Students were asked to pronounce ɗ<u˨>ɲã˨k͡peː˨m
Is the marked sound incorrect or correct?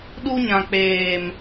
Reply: incorrect: u˦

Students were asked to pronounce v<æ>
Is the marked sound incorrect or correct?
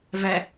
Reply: correct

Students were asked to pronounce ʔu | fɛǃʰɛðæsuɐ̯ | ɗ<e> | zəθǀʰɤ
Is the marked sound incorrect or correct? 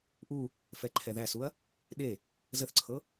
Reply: correct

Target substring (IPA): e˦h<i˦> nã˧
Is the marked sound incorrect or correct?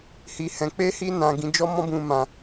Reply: correct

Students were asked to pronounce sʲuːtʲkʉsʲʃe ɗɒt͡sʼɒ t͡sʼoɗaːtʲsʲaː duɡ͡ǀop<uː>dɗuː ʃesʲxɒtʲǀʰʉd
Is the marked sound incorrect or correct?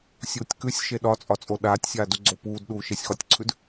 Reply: correct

